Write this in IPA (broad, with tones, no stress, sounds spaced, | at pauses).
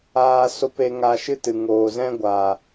aː˧ s o˧ p e˧ ŋ a˧ ʃ ɨ˦ t ɨ˨ ŋ oː˨ z ɛ̃˦ ɡʷ a˨